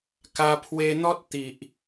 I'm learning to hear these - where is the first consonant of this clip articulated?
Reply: velum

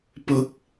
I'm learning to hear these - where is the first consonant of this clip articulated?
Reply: lips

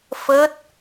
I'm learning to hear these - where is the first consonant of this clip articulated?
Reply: lips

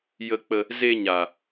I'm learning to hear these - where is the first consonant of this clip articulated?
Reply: palate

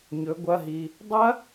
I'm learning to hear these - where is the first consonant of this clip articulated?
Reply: palate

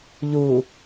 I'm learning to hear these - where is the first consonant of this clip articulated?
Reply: palate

